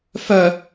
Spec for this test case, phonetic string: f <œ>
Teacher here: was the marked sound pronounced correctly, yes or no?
yes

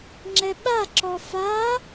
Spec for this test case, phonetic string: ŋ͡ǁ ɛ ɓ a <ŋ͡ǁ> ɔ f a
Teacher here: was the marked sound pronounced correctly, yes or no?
no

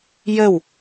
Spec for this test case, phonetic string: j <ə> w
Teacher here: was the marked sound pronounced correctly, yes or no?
yes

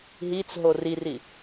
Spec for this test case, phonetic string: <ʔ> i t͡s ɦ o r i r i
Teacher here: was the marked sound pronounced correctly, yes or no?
no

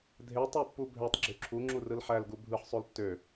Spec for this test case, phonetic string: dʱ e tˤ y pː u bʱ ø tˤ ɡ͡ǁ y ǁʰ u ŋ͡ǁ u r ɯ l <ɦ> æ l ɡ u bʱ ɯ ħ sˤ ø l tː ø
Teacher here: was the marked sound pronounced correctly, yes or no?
no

